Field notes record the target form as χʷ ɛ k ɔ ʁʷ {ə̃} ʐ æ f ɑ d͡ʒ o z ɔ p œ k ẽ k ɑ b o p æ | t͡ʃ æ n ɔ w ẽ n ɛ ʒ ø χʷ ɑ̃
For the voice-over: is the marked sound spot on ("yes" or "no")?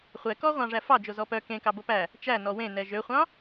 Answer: no